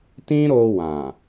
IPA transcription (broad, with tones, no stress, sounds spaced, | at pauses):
t ĩ˦ ɾ o˧ w ã˨